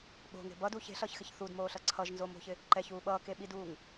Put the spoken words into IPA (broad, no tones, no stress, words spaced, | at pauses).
ɓo̤ŋe̤ bʌdu çe̤ɬʌːçxɪç θudmoːɬʌ ǀʰʌʒnzomo̤çɪ | ǃɛçuː ɓʌːkeɓiduːŋ